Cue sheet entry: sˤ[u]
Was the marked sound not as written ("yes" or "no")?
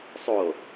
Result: yes